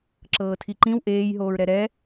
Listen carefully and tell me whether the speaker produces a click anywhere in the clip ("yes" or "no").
yes